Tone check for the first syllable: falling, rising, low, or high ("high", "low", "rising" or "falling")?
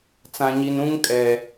low